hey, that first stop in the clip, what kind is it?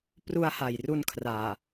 plain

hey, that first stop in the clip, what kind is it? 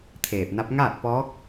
aspirated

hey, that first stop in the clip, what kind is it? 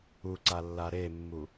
click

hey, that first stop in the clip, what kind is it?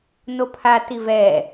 aspirated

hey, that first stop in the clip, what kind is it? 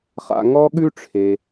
implosive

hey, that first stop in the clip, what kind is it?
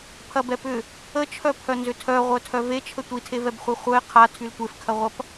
aspirated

